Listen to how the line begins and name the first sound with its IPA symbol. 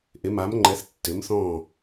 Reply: ʔ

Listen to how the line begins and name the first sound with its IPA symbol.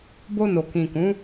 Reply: b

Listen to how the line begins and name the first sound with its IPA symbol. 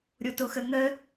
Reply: ɾʲ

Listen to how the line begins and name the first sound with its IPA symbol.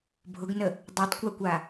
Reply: bʱ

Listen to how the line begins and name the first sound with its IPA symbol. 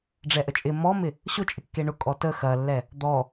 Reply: ɖ͡ʐ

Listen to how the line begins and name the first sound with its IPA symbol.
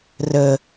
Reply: r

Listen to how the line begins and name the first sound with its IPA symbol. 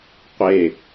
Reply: qʷ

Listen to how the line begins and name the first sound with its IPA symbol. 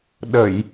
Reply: ɗ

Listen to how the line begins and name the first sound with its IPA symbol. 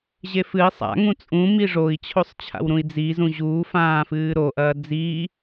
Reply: ʑ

